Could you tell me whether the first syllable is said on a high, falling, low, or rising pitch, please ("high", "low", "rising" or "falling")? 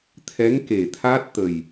rising